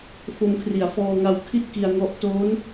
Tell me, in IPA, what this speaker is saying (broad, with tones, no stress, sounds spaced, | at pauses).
f o˧ m kʰ r i˩˦ a̯ f ɔː˧ ŋ a˧ w kʰ i˥˩ t̚ k i˧ a̯ ŋ ɔ˦˥ ʔ t oː˦˥ n